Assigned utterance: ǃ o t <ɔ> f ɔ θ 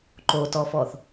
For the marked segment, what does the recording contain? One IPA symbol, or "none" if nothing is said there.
ɔ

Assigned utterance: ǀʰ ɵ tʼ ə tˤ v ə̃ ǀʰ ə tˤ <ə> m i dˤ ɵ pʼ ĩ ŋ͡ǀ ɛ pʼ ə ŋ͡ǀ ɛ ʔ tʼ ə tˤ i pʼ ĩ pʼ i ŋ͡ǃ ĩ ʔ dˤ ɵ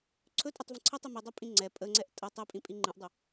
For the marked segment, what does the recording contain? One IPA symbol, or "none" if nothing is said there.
ə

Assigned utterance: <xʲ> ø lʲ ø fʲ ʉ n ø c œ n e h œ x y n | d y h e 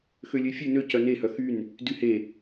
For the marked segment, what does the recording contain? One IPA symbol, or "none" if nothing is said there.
x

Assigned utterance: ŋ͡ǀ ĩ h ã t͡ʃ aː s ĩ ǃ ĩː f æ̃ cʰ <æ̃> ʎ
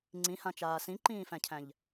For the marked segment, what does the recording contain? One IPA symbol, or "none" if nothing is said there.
æ̃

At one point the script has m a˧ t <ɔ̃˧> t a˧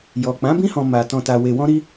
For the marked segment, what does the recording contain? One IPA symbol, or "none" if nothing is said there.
ɔ̃˧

